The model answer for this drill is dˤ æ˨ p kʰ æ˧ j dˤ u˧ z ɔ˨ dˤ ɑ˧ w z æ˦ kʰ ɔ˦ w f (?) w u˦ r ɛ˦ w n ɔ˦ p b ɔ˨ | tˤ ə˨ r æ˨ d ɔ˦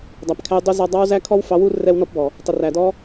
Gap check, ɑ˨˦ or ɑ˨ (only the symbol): ɑ˨˦